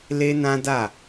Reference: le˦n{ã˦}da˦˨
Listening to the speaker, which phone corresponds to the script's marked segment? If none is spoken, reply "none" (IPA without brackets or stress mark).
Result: ã˦